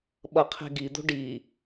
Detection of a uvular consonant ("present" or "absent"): present